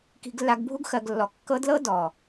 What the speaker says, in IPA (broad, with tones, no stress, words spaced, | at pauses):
ki̤˧ɡlːa˧ɡ bʱu˦ɡxɜ˨ɡlːɔ˨ kːɤ˧dlɤ˦ dɔ˨